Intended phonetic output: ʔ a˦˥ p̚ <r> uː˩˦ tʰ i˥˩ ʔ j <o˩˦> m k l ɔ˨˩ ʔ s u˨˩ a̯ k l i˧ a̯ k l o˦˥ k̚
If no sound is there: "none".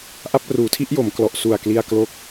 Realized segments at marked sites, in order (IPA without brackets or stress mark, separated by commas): r, o˩˦